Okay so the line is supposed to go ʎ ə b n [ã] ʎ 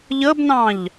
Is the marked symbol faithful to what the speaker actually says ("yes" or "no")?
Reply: no